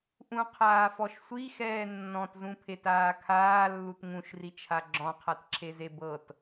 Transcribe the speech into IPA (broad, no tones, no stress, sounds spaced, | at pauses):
ʔ ũ qʰ aː f ɔ ʃ sʷ i x ɛː nː ɔ̃ t z ũ pʰ e t aː kʰ aː lː u t ŋ ũ ʃ r i t͡ʃʰ a ɡ͡ǁ ɔ̃ qʰ a t ǁʰ e z e b ɤ t